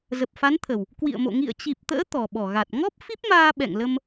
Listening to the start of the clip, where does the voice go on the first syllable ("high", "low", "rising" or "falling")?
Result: low